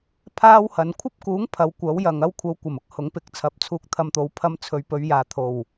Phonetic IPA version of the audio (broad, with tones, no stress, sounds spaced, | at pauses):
pʰ aː˥ w h ɐ˨˧ n kʷʰ ɐ˥ p̚ k uː˨˥ ŋ pʰ ɐ˨˧ w kʷ ɐ˨˥ w j ɐ˨ ŋ ɐ˧ w kʷʰ ɐ˨˧ w kʷ ɐ˨˩ m ʊ˧ k̚ h ʊ˨˥ ŋ p ɪ˨˥ k̚ t͡sʰ ɐ˨˥ p̚ t͡sʰ uː˧ k̚ t̪ʰ ɐ˧ m t̪ o˨˥ w pʰ ɐ˧ m t͡sʰ ɵ˨˧ ɥ p ɵ˨˧ ɥ j aː˨ t̪ʰ o˨˩ w